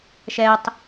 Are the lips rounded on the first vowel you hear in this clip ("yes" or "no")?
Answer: no